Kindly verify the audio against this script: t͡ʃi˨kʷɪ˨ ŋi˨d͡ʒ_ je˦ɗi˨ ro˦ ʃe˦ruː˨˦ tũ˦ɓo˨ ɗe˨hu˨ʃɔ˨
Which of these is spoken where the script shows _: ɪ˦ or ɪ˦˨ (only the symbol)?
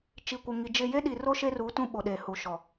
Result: ɪ˦˨